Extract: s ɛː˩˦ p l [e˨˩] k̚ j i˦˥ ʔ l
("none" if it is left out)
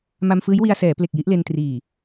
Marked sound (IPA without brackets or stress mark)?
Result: e˨˩